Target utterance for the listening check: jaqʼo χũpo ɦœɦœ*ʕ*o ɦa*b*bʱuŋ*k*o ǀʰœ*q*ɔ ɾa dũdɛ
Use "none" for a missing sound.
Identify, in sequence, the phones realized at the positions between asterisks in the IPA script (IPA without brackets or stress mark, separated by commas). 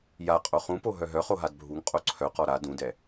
χ, d, qʼ, q